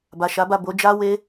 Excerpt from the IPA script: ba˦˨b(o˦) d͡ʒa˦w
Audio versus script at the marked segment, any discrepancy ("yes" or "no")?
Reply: yes